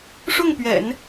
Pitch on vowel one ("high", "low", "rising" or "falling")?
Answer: falling